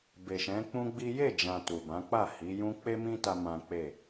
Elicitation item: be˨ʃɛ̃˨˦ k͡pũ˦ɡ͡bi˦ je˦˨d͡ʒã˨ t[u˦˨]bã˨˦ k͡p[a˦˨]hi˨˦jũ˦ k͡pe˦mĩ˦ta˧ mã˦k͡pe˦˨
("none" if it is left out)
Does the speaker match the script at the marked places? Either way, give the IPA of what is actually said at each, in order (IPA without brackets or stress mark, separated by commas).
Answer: u˨, a˦˨